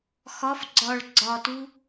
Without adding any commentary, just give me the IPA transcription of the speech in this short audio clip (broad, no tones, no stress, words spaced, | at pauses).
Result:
xɒf ɡ͡ǀɒɭ ɡ͡ǀɒtu